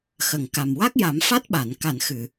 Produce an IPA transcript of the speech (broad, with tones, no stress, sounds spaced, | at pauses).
x ə˨˩˨ ŋ k a˨˩ m w a˦˥ k̚ j a˨˩˦ m f a˦˥ t̚ ɓ a˨˩˨ n k a˨˩˨ n x ɨ˨˩˨